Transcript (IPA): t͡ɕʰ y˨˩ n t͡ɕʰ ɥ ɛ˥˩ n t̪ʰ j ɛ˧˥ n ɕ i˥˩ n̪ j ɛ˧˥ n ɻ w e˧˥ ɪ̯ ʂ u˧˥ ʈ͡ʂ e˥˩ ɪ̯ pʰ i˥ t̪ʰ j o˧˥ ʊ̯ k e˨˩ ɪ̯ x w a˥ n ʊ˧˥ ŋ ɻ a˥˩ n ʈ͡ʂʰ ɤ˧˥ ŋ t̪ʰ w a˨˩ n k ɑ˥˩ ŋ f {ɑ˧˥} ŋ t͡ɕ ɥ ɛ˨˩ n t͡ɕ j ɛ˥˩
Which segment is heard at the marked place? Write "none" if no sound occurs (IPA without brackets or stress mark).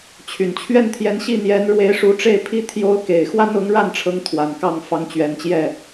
ɑ˧˥